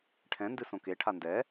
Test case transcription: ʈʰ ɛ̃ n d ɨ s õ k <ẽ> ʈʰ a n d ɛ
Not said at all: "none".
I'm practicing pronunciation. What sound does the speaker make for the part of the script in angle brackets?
e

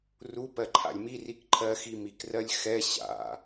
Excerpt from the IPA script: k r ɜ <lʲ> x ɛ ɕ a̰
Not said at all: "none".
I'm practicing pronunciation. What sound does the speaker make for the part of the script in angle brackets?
lʲ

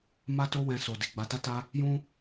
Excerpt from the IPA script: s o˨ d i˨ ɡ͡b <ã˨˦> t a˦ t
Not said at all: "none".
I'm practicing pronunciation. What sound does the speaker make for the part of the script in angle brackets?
a˨˦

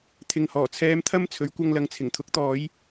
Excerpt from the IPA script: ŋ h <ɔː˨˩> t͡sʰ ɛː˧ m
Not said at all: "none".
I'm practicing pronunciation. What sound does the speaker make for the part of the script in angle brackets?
ɔː˨˩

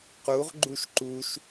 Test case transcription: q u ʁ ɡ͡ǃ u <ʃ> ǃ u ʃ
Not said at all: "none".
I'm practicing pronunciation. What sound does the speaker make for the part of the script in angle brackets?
ʃ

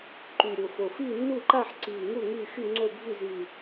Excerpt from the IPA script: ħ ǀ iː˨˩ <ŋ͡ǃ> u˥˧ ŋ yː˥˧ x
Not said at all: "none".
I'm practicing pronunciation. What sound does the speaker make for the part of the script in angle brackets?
ŋ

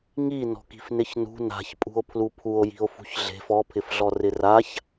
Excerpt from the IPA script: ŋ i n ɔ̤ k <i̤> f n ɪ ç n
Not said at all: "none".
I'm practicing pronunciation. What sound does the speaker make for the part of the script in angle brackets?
i̤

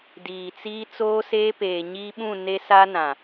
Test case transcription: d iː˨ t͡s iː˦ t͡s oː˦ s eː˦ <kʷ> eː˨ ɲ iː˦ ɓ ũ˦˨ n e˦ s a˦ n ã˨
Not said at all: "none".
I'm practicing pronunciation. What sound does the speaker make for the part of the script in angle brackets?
p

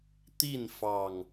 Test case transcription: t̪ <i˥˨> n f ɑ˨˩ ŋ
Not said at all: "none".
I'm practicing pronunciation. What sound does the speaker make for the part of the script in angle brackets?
i˥˨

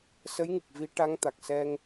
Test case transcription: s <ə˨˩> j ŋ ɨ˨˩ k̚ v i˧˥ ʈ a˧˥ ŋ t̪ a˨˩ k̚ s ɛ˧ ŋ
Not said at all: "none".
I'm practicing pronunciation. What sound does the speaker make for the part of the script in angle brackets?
ə˧˥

